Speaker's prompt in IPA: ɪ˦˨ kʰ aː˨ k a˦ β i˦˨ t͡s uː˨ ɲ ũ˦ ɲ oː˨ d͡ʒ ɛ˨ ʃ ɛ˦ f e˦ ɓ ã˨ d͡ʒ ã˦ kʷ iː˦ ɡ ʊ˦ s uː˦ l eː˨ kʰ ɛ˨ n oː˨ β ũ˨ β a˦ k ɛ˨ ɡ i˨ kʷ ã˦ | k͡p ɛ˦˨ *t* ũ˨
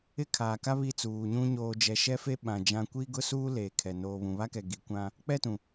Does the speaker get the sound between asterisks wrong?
no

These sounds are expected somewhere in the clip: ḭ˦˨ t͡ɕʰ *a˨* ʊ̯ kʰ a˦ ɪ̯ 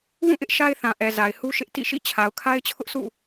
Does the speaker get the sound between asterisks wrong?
no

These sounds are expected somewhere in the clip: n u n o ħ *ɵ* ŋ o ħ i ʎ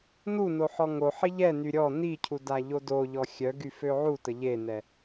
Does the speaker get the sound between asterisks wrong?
yes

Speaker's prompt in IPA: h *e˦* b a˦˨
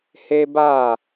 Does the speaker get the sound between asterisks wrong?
no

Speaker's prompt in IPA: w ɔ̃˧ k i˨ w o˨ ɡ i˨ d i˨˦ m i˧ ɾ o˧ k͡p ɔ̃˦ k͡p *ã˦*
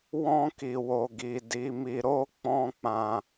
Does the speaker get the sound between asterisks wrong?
yes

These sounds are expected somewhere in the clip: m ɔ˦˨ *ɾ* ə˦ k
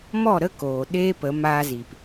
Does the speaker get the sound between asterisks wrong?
no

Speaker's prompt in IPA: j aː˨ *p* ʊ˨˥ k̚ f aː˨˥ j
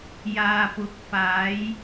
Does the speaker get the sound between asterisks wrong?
no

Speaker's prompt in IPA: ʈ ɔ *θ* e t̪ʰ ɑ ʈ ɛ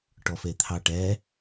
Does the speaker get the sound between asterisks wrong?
yes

